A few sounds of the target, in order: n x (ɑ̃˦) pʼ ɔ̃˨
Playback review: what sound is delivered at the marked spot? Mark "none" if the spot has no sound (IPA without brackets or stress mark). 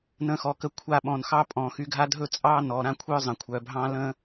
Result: ɑ˦